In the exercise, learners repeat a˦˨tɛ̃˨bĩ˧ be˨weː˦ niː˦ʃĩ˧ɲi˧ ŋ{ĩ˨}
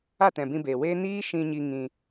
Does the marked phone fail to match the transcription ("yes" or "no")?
yes